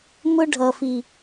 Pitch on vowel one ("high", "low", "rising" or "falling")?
high